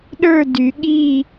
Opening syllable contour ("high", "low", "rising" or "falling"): falling